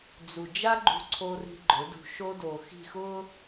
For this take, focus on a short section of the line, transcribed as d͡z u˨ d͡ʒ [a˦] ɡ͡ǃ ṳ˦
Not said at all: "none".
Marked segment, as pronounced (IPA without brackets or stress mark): a˦